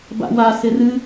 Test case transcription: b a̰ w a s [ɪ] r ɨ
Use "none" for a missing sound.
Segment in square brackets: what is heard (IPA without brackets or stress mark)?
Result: ɪ